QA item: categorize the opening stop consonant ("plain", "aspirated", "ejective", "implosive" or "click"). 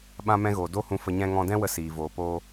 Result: implosive